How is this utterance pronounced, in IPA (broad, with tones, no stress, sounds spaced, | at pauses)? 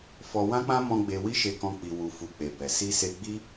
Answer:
f ɔ˧ w ã˦ k͡p ã˦ m ɔ̃˧ ɡ͡b e˧ w i˦ ʃ e˧ k ɔ̃˧ k͡p i˨ w u˨ f u˨ k͡p e˨ b ɛ˨ s i˧ s e˧ ɡ͡b i˦